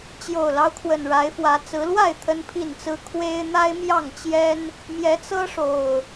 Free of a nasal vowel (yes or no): yes